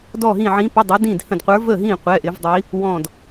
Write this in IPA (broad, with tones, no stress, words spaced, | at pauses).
dɔ˦˨ɦĩ˦˨ ʕĩ˧˥pə˧˥˧dˤə˞˧˥ dĩ˦˨dhə̃˦˨dqʷə˞˧˥ və˦˨ɦĩ˦˨ qʷɛ˧˥˧ʔɪ˧˥vdˤi˧˥ | wɔ̃˦˨d